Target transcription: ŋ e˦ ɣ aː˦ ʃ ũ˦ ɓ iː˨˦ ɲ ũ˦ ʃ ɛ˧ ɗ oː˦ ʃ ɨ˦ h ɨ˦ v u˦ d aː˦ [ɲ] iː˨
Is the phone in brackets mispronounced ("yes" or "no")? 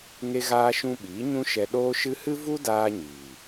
no